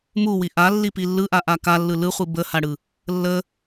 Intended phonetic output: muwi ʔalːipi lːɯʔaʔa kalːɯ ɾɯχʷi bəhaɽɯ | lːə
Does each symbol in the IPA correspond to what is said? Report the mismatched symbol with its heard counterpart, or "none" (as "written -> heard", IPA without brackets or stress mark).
ɾ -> l